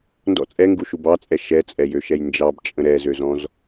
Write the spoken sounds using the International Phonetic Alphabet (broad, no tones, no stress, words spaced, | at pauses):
ndɔ̰ t͡sʼɛŋɡuʃu bɑt͡sʼɛ ʃɛt͡sʼɛjøʃɛj nd͡ʒɑbt͡ʃʼə̃ ɾɛzøzɔ̃z